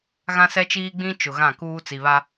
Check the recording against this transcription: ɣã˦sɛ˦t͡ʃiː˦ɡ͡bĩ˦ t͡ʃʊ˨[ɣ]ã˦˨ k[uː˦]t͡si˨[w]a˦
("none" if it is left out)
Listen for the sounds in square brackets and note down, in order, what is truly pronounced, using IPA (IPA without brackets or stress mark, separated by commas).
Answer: ɣ, uː˦, β